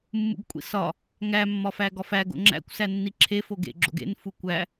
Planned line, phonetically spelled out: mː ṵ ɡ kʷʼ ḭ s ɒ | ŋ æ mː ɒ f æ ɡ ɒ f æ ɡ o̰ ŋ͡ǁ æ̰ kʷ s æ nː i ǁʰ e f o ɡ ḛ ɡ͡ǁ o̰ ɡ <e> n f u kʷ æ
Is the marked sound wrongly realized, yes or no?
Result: yes